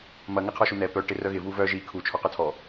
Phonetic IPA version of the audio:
m ɐ ŋ ɪ qʰ ɔ ʃ u n̪ ɛ p œ ʈ ɪ r œ ɣ ɪ v u v œ ʒ i kʰ u t͡ʃʰ ɔ q œ tʰ ɔ

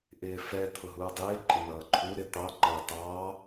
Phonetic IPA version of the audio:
ʔ ɪː f ɛ t̪ʰ ʊ ɦ uː dˤ ɪː ǃʼ ɪ n ʌː ǃʰ u ɾ ɪ t̪ ɑ ŋ͡ǃ ʌː t ɑː

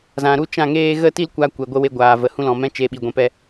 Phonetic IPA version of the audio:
z ã˨ ɾ u˦˨ t͡ʃ ã˦˨ ŋ eː˦ ɣ ə˦ t i˦ l kʷ a˧ kʷ ɛ˨ ɡʷ ə˧ w e˧ ɡʷ aː˨ v ə˨ h ũ˦ l ɔ̃˨ m ɛ̃˦ t͡ʃ e˧ ɓ i˨ ɡʷ ɛ̃˧ p ɛ˦

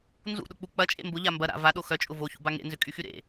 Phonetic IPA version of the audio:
n z ṵ ɗ ʊ k͡p u k͡p ɐ t͡ʃʼ ḛ m b ʊ ʎ a m b ɐ ɾ a̰ v a ɗ o x œ t͡ʃʼ ʊ v o ç ṵ b a ŋ ḛ n z ʏ kʼ y x y ɾ ḛ

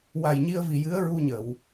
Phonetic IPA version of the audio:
w a˨˩ j ɲ i˧ ə̯ v i˨˩ j ɨ˧˥ ə̯ ɹ u˧ ɲ ə˨˩˨ w

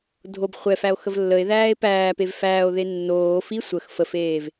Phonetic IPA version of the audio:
dʱ o b χʷ ɛ f æ o̯ x ə v lː ə e̯ ð æː e̯ p æː p e v f æː o̯ ð e nː oː f i sʷ ə x f ə f eː v

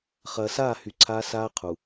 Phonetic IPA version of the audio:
χ ɐː˨ s aː˦˨ h y˨˦ ǀʰ aː˦ s aː˦ qʰ u˨

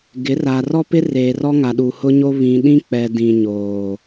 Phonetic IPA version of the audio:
ɡ ɪ˨˦ r a˨ r ɔ˦ p ɪ˦ r eː˨ r ɔ˦ ŋ a˨ ɗ u˨ h ʊ˦ ɲ o˦ β ĩ˨ ɗ ĩ˦ k͡p ɛ˨ d ĩ˨ ɲ oː˨

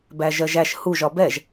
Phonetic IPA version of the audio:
b æ ʒ ɜ ʒ æ ʃ h u ʒ ɒ b ɛ ʒ

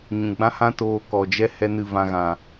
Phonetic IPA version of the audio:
ɲ ũ˨ ɡ͡b ã˦ h ã˦ t oː˨ k ɔ˨ d͡ʒ ɛ˦ h ɛ˦ n ɨ˦˨ v ã˧ ɣ ã˨

